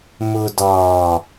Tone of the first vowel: low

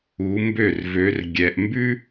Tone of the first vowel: rising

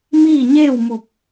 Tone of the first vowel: falling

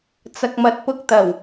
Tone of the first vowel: low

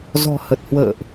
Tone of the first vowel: low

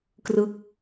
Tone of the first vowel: falling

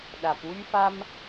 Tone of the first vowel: low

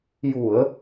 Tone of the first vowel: low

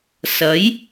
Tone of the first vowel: rising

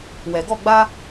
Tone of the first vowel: low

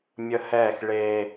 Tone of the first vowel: high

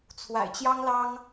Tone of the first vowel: low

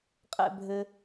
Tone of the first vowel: falling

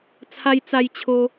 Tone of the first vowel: high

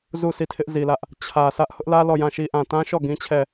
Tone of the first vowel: falling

